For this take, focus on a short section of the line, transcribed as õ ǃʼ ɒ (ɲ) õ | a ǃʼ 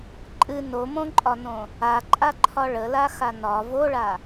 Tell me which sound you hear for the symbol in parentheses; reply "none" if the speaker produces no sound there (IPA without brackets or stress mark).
n